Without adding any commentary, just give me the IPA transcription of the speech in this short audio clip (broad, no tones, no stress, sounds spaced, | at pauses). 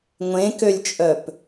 ŋʷ ẽ k ø lʲ t͡ʃʼ œ p